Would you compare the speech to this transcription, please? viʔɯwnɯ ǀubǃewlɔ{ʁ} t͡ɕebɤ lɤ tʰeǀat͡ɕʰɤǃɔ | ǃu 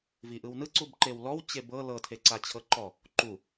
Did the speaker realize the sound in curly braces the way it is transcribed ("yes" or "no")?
no